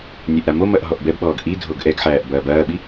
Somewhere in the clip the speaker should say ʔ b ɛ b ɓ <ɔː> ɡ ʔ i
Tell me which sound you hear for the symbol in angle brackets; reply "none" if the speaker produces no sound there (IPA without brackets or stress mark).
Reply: ɔː